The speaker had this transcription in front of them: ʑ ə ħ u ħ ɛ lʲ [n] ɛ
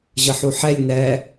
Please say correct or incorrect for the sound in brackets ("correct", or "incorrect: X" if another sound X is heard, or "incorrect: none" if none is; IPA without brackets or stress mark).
correct